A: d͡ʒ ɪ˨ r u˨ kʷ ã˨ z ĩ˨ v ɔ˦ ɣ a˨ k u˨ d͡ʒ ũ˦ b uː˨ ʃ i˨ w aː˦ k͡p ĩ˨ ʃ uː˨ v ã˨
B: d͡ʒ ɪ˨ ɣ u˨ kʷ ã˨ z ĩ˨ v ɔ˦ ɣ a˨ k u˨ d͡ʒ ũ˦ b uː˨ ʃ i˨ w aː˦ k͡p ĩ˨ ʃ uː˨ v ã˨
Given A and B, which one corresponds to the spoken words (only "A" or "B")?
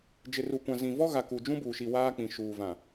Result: A